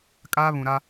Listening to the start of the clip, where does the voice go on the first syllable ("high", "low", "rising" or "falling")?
high